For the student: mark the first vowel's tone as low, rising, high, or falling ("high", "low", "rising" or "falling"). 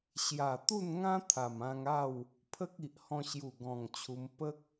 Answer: low